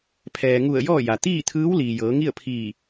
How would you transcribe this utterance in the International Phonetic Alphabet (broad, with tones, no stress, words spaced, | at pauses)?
pʰɛː˩ŋu˧˩ə̯ jɔː˥˨ja˩ t̪iː˥˨t̪ʰɯː˧˥w liː˩jɤː˩˧ŋi˥˨ə̯pʰiː˧˩